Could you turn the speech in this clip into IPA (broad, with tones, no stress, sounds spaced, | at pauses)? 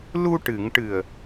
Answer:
l u˧ ʈ ɨ˨˩˨ ŋ ʈ ɨ˨˩ ə̯